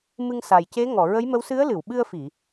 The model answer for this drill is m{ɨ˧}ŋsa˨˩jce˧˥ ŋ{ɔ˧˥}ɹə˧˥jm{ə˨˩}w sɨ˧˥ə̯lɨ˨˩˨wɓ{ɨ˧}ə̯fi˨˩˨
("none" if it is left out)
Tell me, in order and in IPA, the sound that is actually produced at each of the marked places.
ɨ˧, ɔ˨˩˨, ə˧˥, ɨ˧

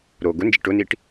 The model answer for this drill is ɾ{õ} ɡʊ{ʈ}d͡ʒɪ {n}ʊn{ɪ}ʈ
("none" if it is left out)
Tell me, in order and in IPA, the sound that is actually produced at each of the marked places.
o, n, ʈ, i

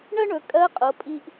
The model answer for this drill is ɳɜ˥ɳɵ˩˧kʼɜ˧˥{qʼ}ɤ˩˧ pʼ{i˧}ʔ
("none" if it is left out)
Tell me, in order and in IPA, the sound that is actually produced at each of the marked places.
qʼ, i˧

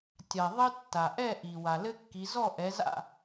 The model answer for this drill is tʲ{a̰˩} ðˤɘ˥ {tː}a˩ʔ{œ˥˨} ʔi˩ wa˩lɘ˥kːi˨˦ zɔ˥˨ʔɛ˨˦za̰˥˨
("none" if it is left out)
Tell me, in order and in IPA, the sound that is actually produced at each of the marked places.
a˩, tː, ɛ˥˨

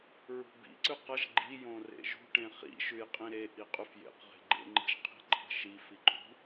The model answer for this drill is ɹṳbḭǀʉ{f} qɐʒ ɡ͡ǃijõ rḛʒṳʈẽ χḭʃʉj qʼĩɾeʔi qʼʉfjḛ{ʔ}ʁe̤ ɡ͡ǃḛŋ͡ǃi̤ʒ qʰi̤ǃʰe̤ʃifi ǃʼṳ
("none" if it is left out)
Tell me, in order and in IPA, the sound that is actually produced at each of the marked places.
none, q

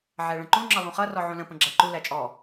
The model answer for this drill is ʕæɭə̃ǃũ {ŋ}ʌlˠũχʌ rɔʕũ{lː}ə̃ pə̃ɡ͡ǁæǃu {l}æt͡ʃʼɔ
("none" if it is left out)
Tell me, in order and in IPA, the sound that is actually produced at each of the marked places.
ŋ͡ǁ, l, l

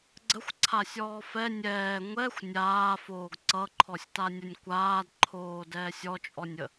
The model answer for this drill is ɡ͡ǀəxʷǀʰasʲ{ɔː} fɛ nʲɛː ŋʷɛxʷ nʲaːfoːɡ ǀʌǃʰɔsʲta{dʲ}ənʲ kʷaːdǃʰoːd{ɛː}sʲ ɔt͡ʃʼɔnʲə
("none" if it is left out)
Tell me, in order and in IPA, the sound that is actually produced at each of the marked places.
ɔː, nʲ, ɛː

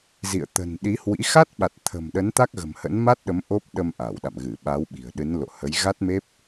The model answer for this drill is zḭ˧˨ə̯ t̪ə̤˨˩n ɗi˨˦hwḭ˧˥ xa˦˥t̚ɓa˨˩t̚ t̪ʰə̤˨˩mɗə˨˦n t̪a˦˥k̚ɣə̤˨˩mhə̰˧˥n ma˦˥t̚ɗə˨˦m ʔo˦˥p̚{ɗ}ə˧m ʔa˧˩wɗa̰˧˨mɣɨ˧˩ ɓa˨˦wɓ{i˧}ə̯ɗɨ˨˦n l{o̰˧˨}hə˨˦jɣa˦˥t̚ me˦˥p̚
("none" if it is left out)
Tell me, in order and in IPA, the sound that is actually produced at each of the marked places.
ɗ, i̤˨˩, o̰˧˨

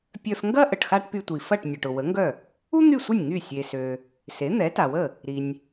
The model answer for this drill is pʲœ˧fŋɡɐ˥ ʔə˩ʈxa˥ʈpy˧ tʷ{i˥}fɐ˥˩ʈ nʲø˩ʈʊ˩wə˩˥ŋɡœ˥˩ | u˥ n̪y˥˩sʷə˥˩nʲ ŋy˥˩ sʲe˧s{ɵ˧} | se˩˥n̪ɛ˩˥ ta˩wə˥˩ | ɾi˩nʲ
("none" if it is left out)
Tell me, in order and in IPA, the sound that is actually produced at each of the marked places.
i˩, ø˧

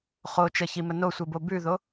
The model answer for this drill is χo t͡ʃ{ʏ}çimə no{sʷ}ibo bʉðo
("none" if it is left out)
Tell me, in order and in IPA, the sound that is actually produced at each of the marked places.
ə, sʷ

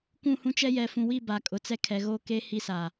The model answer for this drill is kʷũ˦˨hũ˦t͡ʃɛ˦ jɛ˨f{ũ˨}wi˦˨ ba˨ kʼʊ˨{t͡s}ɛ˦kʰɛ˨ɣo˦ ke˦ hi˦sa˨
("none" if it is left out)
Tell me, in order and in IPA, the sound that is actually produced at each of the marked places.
ũ˨, t͡s

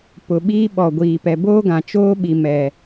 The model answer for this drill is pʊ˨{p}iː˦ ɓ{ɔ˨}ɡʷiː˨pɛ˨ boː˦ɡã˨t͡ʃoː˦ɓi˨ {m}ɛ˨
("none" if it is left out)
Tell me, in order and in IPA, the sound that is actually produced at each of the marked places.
ɓ, ɔ˨, m

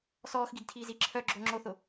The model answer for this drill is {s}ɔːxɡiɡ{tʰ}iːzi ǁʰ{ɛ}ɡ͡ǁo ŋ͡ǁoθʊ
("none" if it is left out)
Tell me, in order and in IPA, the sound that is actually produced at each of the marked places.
s, tʰ, œ

